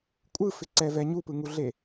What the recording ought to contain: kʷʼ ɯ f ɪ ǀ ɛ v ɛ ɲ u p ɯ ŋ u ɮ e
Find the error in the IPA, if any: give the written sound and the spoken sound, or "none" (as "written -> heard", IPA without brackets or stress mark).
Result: none